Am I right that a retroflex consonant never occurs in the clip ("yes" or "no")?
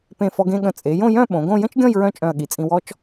yes